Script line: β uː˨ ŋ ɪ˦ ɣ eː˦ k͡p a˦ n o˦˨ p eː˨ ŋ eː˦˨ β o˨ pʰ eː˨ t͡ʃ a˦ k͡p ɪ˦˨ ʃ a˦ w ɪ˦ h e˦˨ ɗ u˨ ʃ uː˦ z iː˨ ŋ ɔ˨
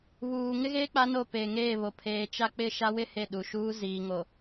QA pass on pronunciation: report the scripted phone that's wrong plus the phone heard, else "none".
ɔ˨ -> o˨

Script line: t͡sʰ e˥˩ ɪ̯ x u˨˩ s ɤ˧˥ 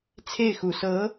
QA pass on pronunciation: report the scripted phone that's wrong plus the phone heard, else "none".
none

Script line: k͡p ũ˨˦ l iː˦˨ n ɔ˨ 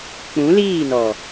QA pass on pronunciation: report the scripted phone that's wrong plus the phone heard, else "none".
none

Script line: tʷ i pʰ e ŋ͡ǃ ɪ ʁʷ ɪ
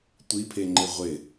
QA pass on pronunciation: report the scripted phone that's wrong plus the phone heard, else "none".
none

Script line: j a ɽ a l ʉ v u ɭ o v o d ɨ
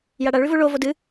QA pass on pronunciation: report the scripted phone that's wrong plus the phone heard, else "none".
l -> ɭ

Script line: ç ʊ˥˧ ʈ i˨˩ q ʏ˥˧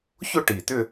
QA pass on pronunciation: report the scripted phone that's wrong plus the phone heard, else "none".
q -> t̪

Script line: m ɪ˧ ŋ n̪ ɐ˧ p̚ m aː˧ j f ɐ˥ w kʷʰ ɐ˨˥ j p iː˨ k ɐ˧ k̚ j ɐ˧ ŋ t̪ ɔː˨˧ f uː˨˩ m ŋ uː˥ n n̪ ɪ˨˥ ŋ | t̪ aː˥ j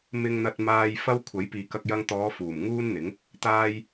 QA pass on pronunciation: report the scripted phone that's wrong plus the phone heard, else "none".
p̚ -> t̚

